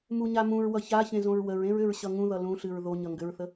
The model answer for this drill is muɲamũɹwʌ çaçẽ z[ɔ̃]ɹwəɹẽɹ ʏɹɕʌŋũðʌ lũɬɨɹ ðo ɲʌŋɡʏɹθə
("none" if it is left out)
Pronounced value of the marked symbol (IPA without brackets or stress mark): õ